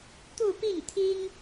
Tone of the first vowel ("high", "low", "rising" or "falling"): falling